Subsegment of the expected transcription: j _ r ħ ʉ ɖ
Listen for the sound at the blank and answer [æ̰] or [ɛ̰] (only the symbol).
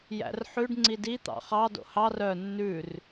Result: æ̰